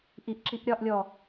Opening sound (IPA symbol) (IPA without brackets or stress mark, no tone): ʔ